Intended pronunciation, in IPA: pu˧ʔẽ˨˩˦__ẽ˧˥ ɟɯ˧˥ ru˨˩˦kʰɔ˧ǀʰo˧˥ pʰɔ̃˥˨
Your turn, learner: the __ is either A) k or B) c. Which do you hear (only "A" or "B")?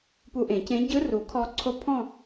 B